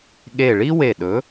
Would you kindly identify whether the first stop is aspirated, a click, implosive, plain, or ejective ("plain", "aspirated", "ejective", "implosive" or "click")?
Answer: implosive